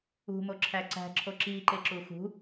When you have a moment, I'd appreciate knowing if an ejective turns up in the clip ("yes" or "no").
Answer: no